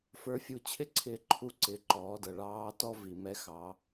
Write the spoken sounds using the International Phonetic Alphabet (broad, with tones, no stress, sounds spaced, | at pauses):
f ə˞˧ fʲ u˧ t͡ɕʰ ɪ˥ ǀʰ ɪː˧ ǃʰ u˧ ǀ ɪ˩˧ ǃ ɔː˩˧ d ʌ˩ ɭ ɑː˧˥ t ɔ˥ v i˩ m ɛ˧˥ x ɑ˩˧